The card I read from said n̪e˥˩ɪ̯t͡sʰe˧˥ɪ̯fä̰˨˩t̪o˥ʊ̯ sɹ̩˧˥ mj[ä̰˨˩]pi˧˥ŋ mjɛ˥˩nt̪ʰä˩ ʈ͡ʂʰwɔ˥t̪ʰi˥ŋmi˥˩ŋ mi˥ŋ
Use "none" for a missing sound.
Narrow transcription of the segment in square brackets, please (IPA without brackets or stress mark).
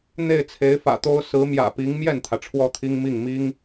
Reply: ä̰˨˩